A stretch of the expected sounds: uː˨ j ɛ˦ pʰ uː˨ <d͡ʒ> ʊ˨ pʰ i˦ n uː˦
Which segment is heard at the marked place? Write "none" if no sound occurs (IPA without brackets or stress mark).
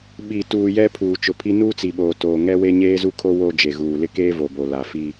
t͡ʃ